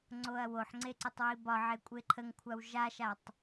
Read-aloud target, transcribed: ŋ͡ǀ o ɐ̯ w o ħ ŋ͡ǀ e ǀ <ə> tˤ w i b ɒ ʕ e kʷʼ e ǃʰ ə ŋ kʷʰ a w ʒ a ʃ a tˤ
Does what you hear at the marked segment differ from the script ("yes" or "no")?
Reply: no